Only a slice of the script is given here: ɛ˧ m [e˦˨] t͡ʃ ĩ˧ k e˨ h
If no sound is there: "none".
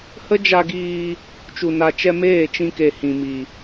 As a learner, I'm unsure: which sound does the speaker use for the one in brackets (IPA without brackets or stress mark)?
eː˦˨